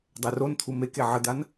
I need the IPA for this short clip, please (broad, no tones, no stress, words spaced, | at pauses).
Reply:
dˤɛront̪ʰu meke ʕəd̪an